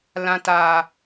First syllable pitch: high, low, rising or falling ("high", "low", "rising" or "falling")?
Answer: low